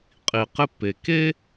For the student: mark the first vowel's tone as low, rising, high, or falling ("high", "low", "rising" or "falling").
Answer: low